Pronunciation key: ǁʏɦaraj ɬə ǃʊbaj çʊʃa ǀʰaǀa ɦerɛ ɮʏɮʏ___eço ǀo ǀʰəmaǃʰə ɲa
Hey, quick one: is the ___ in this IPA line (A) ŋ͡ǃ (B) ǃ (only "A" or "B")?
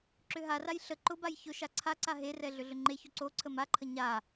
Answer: A